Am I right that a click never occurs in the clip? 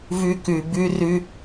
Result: yes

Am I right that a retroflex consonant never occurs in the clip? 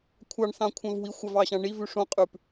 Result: no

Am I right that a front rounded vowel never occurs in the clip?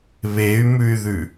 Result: no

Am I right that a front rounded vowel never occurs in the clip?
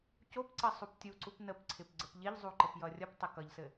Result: yes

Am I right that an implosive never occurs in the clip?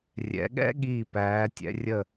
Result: no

